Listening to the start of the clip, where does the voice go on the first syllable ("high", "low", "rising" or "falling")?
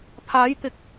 rising